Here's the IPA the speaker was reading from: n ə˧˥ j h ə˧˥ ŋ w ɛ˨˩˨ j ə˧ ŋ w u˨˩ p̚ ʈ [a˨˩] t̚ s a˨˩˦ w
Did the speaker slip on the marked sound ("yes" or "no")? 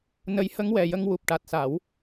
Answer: no